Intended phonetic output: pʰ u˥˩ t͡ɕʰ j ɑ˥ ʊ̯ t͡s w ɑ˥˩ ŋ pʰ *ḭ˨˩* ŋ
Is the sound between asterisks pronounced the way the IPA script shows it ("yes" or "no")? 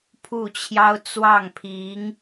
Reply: no